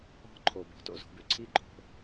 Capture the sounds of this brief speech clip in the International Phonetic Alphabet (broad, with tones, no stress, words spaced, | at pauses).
ɔ̤˦ǃʰo˨ bɔ̤˨˦to̰˧zo̤˨˦bʉ˨ ǀʰi˦ǃʼo̤˧